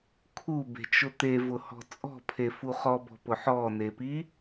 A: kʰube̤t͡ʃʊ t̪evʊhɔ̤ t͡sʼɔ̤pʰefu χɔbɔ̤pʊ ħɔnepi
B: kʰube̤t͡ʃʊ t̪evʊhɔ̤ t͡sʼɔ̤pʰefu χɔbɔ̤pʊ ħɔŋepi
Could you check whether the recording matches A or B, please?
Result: A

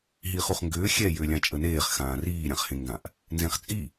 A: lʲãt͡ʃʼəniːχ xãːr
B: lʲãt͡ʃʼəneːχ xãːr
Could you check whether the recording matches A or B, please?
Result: B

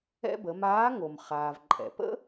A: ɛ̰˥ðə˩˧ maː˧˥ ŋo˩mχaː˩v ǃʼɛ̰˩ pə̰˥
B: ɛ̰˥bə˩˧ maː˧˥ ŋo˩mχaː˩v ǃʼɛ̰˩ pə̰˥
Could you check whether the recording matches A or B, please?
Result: B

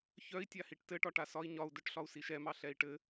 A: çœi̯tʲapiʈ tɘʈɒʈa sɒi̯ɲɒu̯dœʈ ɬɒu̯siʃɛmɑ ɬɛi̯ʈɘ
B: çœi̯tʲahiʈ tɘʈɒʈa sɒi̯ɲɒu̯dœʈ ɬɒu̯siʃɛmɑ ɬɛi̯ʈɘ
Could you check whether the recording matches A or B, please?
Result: B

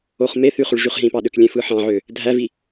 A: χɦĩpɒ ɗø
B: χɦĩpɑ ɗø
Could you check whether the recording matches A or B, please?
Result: B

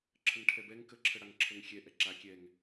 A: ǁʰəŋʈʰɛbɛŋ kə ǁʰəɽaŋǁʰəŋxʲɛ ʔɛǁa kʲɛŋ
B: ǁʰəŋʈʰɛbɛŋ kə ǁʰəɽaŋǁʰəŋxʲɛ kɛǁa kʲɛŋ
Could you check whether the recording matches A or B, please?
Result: A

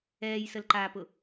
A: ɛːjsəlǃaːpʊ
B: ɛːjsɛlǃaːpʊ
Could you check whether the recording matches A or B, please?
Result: A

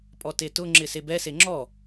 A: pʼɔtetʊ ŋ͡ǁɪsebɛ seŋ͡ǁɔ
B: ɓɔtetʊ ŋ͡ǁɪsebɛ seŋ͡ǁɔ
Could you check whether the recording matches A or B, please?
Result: A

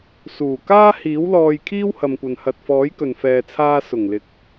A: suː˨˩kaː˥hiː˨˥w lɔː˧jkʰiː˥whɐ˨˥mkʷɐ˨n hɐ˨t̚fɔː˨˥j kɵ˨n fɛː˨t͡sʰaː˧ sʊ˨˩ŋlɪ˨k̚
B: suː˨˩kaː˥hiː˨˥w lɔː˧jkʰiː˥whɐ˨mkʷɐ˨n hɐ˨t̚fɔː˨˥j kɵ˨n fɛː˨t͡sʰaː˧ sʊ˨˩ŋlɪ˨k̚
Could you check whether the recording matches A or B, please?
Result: B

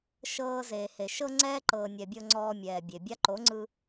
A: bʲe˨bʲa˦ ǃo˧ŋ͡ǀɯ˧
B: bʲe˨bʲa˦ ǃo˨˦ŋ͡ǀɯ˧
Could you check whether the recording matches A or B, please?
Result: B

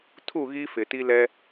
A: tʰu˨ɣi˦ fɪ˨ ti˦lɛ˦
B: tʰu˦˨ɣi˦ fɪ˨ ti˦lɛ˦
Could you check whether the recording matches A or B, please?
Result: B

